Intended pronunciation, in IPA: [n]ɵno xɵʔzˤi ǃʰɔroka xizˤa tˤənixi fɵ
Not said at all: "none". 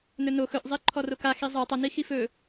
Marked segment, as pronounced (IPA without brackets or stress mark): n